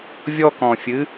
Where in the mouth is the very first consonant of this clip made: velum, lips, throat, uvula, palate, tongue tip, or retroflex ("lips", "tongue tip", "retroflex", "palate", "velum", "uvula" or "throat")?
lips